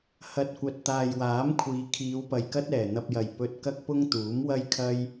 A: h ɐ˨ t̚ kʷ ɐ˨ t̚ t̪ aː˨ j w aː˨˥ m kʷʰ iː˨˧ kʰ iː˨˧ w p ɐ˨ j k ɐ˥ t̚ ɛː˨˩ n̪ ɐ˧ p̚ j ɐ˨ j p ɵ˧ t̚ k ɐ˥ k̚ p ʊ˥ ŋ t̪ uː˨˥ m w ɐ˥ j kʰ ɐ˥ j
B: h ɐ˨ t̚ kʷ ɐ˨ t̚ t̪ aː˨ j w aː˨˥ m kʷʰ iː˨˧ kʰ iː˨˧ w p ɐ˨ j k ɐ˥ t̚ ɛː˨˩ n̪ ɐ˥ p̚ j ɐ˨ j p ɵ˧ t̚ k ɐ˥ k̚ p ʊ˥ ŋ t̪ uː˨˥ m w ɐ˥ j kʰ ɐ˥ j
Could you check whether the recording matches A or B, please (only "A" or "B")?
A